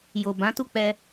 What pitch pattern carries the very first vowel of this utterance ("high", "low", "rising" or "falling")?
low